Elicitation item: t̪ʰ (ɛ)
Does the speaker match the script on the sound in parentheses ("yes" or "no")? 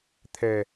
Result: yes